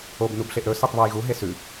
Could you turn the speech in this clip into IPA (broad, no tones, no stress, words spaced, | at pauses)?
ob nubɬeʔɾɵ sitˤβojɣu ɦesʉ